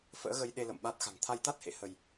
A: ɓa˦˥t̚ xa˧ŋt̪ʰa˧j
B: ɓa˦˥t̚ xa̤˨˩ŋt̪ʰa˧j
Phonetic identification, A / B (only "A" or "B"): B